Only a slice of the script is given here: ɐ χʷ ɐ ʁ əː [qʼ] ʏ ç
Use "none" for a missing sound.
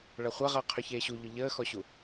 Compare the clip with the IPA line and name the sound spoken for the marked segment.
qʰ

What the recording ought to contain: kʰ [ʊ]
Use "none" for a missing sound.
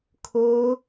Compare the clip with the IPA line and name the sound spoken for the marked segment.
ʊ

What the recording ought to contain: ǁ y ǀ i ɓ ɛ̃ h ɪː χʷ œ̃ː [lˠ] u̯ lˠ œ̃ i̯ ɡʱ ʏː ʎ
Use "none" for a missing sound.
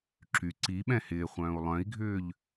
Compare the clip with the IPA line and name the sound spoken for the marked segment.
none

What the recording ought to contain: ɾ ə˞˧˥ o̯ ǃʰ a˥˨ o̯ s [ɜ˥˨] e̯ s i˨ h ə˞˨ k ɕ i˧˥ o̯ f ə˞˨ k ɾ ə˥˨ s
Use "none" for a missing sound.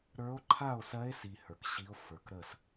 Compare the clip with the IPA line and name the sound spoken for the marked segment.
ɜ˧˥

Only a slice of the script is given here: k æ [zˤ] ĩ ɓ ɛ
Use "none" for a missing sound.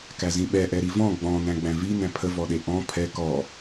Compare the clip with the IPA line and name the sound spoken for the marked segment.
z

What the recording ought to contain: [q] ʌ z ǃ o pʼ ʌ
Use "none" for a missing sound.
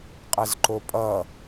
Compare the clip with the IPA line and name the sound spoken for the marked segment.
qʼ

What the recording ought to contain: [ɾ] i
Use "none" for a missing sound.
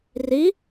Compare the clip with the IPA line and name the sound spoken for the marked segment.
r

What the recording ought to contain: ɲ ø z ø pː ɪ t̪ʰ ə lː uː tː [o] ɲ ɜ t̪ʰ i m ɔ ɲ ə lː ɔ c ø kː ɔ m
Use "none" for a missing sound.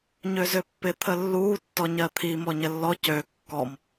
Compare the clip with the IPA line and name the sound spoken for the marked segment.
ɔ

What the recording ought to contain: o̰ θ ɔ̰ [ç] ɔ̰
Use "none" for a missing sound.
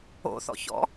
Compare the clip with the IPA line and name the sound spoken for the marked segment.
ç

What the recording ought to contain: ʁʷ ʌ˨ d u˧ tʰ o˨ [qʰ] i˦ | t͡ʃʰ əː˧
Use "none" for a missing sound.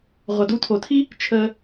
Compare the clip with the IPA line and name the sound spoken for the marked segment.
tʰ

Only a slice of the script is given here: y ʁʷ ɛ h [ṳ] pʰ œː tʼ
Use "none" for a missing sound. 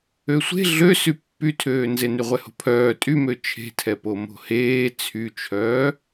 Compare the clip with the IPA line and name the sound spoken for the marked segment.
o̤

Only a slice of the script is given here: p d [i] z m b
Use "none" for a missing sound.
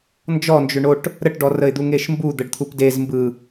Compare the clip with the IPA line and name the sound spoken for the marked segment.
e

